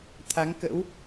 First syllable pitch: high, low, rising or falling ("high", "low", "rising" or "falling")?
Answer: rising